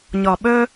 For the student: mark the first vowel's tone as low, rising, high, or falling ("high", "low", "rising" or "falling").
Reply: low